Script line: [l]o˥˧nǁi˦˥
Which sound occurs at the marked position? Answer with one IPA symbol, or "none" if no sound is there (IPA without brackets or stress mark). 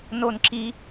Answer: n